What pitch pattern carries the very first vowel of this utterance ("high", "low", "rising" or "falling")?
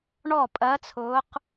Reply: falling